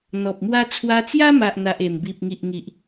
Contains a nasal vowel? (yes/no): no